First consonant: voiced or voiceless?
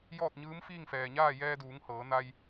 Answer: voiced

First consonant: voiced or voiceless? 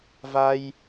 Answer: voiced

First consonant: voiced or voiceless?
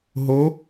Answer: voiced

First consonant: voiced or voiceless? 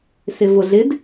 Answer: voiceless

